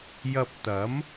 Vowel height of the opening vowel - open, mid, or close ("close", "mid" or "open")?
open